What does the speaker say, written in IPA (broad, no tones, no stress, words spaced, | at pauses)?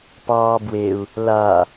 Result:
pɑːbweu̯ | la